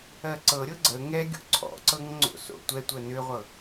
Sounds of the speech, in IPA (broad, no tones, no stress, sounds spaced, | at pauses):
ɜ ǀ ɤ ɾʲ ɤ ɡ͡ǀ ə ŋ ɛ ɡʲ o̰ ǀʰ ɔ̰ ǀ ɤ ŋ ŋ͡ǀ o̰ s o̰ tʷ ɛ tʷ ɜ n ʏ ʁʷ ɤ